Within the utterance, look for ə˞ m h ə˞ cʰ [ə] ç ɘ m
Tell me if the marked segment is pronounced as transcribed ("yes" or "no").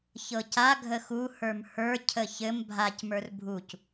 yes